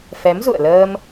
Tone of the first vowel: rising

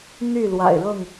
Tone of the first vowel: falling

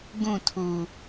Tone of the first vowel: falling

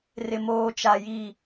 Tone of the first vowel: low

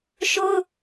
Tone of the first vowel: high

